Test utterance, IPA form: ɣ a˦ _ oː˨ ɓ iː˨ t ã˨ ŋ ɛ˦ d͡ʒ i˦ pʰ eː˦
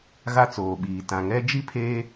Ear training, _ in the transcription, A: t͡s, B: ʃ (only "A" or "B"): A